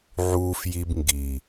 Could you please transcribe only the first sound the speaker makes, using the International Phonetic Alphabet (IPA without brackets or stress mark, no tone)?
ʕ